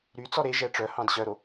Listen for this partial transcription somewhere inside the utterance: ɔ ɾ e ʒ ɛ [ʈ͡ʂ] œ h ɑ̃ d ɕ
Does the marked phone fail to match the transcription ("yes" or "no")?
no